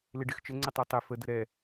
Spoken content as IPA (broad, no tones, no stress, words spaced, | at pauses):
lɪɖɪxt͡ʃə ŋ͡ǀɪtˤɜtˤe fə dəɾɛ